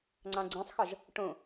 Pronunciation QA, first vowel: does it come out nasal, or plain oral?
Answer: nasal